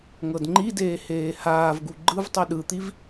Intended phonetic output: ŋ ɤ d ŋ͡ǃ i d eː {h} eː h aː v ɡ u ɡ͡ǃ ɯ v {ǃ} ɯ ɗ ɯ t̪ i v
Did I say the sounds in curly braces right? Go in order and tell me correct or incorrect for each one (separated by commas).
correct, incorrect